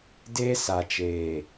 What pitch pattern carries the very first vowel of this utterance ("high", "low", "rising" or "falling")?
high